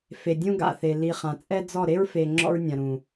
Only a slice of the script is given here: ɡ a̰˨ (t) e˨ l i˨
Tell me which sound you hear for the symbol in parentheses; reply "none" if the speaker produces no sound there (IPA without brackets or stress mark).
θ